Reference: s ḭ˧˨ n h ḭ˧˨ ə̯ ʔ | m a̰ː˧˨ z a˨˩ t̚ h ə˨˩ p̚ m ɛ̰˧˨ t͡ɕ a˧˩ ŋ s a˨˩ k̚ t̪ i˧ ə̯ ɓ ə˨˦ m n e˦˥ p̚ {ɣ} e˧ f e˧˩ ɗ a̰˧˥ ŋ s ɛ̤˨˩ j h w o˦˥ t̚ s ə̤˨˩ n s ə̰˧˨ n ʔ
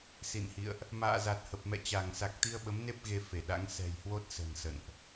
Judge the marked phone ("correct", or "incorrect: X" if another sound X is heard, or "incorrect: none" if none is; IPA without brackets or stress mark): correct